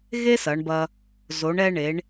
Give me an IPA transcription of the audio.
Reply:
ɣ e˥ s ɐ˩˧ ɳ b ɐ˧ | z o˩˧ ɳ ɛ˧ ɳ e˩˧ ɳ

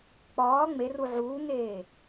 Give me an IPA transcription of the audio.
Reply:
k͡p ɒː ŋ͡m e r u ʕ uː ŋ eː

